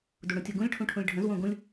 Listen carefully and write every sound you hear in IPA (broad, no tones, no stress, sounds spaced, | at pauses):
d u ɽ õ tʲ o ɡ ũ lʲ ʈʰ ũ ʈʰ ũ lʲ ɖʱ ə̃ z w õ ɡ ũ lʲ